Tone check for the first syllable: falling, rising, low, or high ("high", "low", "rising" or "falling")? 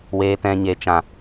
low